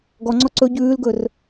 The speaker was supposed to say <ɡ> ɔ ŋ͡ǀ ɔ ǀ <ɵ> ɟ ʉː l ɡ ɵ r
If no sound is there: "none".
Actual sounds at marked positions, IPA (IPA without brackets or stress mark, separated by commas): ɡ, ɵ